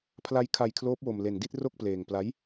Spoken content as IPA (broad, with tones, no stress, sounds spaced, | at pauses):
pʰ l a˦˥ j kʰ a˧ j kʰ l oː˦˥ p̚ w o˧ m l e˧ n d i˥˩ t̚ r o˥˩ k̚ p l eː˧ ŋ p l a˦˥ j